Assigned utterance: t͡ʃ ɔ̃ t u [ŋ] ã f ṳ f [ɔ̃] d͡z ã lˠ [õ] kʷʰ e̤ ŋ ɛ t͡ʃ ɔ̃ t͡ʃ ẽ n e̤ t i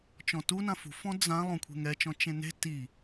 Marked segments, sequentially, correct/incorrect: incorrect, correct, correct

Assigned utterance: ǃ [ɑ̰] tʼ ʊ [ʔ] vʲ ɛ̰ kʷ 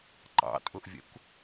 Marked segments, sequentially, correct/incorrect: correct, correct

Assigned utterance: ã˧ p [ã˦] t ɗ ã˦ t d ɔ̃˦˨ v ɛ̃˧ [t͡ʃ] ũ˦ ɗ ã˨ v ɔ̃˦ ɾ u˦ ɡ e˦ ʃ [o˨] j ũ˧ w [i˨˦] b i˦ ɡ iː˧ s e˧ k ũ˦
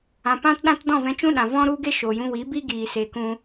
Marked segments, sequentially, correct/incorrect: correct, correct, correct, correct

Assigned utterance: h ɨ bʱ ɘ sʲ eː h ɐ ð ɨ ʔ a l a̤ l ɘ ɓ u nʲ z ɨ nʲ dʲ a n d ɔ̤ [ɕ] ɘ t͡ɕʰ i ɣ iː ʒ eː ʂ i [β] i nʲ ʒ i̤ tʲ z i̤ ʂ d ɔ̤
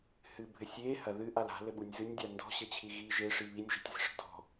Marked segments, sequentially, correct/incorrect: correct, correct

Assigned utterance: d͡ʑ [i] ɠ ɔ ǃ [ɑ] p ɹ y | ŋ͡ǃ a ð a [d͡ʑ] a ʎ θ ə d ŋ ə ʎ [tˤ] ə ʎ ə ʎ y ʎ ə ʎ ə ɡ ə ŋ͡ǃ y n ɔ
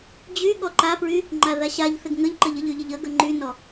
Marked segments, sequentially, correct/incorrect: incorrect, incorrect, incorrect, incorrect

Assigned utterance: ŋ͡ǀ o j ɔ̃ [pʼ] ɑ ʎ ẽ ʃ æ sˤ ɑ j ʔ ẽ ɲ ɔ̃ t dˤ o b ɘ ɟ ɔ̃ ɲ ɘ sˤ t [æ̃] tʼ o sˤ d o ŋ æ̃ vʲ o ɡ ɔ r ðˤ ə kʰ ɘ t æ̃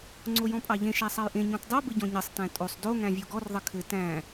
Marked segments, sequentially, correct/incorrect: correct, correct

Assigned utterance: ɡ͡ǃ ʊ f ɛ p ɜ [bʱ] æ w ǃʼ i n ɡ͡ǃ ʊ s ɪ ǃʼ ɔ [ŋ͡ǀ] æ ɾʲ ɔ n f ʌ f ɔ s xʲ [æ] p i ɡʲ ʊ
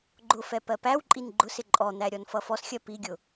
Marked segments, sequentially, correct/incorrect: incorrect, incorrect, incorrect

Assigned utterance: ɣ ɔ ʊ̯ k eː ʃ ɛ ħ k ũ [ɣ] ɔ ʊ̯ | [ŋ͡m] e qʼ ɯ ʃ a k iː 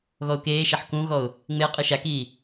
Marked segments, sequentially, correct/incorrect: correct, correct

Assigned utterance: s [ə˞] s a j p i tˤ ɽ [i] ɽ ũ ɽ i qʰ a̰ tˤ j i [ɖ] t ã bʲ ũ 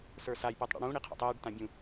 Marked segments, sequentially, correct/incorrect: correct, incorrect, correct

